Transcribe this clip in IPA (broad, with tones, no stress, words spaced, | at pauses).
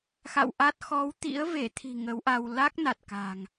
xa̰˧˨wʔa˦˥t̚ xɔ˨˦wt̪ḭ˧˥ə̯ve˧˩ t̪ʰi̤˨˩ ŋə˨˦wʔa˧w la˦˥k̚na˨˩t̚ ka̤˨˩ŋ